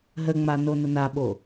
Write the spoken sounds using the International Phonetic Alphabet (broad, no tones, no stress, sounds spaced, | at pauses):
ɦ ə ŋ͡m a n o n ə n a ɓ o